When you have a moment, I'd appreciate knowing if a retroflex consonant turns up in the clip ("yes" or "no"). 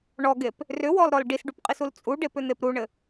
yes